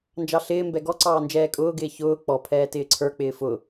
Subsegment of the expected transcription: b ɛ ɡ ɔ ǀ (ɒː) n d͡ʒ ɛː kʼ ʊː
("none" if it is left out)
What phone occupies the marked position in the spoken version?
ɑː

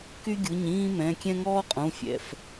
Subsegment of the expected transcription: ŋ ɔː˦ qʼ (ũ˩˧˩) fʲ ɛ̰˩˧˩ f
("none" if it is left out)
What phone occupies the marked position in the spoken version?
ũ˩˧˩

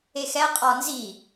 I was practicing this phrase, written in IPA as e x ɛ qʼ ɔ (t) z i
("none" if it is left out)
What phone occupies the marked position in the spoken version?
n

